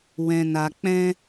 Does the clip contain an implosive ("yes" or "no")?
no